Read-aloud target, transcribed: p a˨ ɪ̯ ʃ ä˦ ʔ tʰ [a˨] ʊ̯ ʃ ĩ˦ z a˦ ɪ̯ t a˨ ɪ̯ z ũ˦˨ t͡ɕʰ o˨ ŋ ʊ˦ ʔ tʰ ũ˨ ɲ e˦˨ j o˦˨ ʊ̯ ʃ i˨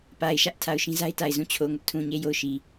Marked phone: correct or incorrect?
correct